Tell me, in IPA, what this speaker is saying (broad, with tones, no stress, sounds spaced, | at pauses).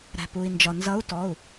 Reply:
ɾ æ̤˩ p u˩ i̯ n d͡ʒ ɒ˩ n z ʌ˧˥ u̯ t ɔ˩˧˩ u̯